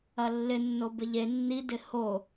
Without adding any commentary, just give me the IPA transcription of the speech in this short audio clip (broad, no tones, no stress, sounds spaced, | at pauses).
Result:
ɐ lː ɪ nː o b ɪ ʎ e nː i d ɪ h o